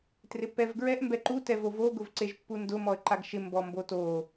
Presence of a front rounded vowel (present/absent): absent